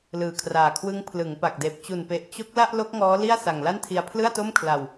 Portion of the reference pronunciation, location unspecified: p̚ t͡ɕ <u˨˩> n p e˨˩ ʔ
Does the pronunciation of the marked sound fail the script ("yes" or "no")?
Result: no